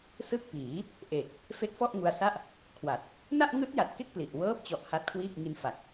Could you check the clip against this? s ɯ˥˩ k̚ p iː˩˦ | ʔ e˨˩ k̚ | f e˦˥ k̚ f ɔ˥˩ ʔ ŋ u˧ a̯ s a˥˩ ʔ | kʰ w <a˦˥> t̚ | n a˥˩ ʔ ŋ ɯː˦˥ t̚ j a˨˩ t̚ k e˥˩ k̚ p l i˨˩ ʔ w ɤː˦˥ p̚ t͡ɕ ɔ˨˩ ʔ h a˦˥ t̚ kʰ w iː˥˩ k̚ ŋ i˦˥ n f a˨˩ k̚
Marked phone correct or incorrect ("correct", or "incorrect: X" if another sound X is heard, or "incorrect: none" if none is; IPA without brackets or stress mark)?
incorrect: a˨˩